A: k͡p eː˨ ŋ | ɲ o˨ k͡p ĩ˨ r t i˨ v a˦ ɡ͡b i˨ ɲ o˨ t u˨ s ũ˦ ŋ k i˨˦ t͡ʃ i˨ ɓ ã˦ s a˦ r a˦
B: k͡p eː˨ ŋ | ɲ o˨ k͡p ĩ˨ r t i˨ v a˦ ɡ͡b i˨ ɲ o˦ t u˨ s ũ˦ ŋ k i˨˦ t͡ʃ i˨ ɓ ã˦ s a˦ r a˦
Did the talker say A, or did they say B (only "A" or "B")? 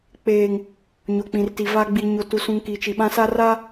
A